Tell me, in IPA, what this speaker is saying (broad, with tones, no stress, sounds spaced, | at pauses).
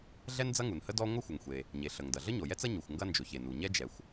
ɮ ɛ˥ n d͡z ɐ˥ ŋ u˩ n h ə˥ d ɔ˥ ŋʷ ə˥ xʷ ə˩ ŋ xʷ e˩ | ɲ e˩ ɬ ə˩ ŋ d ɐ˩ ɮ ə˥ ɲ o˩ j ɛ˥ t͡s ɐ˥ ɲ u˩ xʷ ŋ ɡ ɐ˥ n d͡ʒ o˩ ç e˩ n u˩ ɲ ɛ˥ d͡ʒ ɛ˩ xʷ